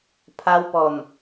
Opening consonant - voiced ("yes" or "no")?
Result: no